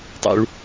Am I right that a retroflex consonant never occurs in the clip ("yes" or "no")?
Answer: no